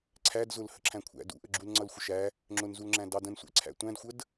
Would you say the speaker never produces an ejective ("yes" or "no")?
yes